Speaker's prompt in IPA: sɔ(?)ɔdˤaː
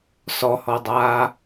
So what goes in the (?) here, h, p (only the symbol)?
h